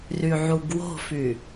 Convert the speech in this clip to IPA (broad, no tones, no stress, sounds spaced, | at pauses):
r y ʕ u ɡ w o̤ f y